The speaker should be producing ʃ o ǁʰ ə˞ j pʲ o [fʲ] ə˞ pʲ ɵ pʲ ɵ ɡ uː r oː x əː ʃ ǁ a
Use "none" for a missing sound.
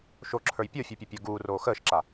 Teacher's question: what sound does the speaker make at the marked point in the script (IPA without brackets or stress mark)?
fʲ